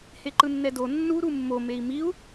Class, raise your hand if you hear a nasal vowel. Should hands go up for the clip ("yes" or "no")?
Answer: no